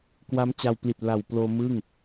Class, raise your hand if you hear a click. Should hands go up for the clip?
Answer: no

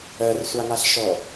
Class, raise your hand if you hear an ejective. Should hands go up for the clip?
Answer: no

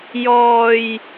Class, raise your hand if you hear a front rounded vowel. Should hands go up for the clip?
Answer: no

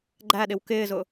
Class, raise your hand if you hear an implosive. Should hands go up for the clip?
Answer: yes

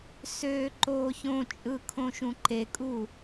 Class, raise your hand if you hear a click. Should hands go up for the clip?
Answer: yes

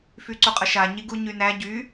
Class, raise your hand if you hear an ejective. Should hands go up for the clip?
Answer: yes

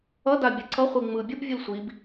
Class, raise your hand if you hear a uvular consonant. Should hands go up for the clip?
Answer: yes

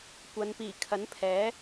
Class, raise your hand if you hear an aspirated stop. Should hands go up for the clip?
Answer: yes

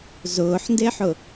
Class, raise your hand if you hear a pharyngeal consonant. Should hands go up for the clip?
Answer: yes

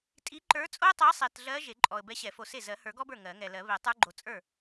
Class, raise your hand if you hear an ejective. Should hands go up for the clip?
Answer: yes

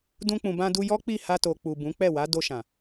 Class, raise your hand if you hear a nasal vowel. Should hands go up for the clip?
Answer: yes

